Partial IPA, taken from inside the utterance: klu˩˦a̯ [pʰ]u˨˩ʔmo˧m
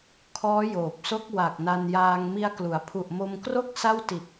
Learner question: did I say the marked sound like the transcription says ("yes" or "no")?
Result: yes